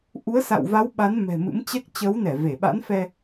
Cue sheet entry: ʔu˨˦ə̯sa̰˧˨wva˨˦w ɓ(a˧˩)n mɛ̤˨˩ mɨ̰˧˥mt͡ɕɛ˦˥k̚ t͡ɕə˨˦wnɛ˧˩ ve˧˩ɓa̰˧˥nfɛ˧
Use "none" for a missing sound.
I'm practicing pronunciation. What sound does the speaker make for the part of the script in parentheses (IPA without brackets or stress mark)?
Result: a˨˦